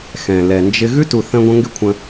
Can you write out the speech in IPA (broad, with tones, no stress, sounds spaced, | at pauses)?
x ɛ̃˨ l ɛ˨ n d͡ʒ ɪ˧ ɣ ʉ˦ t u˨ θ ə̃˧ ɡʷ ə̃˧ ŋ ɡ ɪ˦ kʷʰ ə̃˧